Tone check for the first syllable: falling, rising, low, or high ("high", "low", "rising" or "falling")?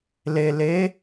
low